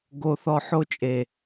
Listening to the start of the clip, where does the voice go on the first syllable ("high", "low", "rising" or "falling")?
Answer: high